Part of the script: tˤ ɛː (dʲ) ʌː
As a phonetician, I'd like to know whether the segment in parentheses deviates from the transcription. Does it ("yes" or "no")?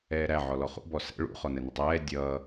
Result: no